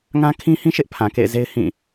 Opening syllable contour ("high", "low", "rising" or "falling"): high